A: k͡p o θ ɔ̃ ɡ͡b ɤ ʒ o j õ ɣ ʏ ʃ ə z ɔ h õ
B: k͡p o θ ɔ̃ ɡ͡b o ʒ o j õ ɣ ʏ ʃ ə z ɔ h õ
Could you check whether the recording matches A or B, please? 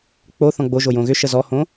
B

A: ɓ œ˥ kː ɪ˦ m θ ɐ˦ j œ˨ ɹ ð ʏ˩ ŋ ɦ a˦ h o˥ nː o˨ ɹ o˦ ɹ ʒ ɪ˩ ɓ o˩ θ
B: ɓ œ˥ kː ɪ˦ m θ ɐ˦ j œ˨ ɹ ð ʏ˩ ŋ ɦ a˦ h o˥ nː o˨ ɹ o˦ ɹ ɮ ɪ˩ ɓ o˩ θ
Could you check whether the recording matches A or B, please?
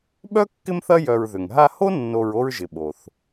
A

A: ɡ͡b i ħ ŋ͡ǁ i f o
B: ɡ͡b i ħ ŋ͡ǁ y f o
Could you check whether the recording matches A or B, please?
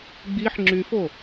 B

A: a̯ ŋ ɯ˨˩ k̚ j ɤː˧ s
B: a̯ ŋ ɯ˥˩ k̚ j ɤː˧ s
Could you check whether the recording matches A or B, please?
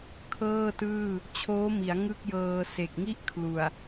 B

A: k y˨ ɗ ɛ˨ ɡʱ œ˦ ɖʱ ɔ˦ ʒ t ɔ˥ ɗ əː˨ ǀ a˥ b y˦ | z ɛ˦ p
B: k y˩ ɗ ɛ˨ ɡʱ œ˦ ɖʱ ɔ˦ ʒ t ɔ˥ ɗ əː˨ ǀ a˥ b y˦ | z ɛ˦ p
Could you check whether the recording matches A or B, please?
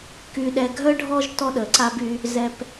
A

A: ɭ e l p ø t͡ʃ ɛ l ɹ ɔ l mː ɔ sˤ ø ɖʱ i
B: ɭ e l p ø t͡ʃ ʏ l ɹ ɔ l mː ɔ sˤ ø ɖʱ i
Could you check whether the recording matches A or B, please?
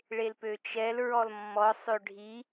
A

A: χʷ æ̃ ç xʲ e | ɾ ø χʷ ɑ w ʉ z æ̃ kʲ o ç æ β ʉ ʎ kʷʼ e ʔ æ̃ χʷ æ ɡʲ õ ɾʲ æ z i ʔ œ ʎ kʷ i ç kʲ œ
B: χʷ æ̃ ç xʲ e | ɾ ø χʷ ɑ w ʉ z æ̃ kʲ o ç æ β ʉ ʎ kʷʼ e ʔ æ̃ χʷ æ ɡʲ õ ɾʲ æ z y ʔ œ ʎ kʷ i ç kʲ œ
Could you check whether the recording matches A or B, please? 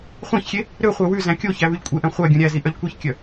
A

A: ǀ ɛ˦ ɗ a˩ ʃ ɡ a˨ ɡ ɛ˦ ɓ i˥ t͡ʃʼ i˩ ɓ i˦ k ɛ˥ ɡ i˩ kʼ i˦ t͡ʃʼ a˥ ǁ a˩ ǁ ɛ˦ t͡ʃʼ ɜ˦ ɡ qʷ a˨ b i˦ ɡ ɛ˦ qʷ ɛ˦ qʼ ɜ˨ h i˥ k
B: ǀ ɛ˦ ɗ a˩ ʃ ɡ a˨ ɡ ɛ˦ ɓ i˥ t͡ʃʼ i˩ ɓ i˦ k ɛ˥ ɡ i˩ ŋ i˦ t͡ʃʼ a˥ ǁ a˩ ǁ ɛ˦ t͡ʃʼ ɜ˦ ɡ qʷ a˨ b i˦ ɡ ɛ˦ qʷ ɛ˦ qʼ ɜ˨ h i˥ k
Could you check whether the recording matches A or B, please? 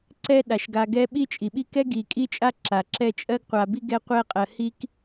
A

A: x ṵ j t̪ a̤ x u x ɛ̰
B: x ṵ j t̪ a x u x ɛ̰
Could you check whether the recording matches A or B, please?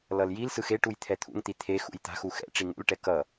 A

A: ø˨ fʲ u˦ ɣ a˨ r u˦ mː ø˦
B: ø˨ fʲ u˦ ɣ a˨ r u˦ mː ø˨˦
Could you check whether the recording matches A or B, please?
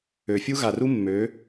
B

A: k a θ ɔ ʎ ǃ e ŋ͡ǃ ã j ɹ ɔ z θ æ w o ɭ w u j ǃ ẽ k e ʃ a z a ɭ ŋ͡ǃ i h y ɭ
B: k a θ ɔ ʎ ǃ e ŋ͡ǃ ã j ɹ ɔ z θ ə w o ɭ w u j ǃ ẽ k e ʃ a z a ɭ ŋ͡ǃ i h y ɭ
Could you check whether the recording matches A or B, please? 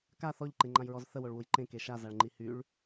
B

